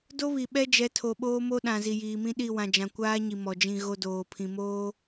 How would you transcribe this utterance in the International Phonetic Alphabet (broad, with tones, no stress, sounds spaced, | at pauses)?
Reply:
d o˦ β i˨ ɓ ɛ˦ d͡ʒ ɛ˨˦ tʰ o˨ ɓ oː˦ m o˦ ɗ ã˨ z i˨ j iː˨ m ĩ˦ ɗ i˦˨ w ã˨ d͡ʒ ã˨ kʷ aː˦ ɲ i˨ m ɔ˨ d͡ʒ ĩ˦˨ ɣ o˦ d oː˨ pʰ ĩ˨ m oː˦